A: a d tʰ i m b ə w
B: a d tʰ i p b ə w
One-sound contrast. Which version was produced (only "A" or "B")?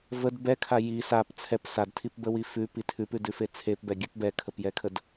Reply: B